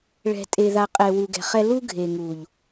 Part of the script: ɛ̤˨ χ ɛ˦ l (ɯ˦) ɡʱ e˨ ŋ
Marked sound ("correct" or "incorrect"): incorrect